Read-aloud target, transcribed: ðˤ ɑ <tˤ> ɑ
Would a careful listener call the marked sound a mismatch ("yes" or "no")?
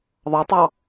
no